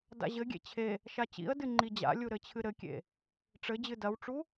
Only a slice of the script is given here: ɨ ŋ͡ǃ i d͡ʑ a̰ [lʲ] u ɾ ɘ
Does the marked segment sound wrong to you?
no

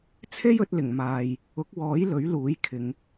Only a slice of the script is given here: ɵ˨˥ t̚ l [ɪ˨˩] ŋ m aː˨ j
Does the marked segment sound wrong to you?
no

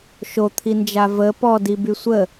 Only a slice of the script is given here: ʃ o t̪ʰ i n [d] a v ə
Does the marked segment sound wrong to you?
yes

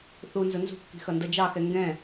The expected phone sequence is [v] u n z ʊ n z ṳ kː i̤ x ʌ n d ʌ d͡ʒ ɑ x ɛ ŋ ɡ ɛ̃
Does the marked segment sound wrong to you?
yes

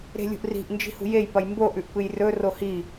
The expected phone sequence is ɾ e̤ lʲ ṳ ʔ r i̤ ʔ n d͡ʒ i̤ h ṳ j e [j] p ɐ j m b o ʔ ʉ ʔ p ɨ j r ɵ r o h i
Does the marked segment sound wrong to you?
no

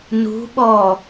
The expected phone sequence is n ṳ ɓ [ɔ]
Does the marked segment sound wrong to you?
no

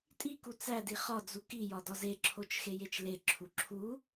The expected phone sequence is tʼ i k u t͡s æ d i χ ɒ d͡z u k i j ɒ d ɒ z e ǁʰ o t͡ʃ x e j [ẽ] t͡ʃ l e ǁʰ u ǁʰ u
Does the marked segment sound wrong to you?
yes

